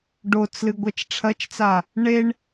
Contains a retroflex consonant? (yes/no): yes